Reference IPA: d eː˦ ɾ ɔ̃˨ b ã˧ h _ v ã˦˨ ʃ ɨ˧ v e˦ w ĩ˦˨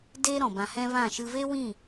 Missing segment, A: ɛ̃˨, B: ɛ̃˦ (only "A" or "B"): B